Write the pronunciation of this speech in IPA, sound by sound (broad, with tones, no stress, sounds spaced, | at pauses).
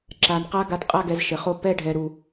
ǁ a˨ n q a˧ ɡ a˧ t qʼ a˦ ɡ ɛ˧ z ʃ ɘ˨ χ o˦ p ɛ˦ ɖʱ ɛ˨ ɾ u˨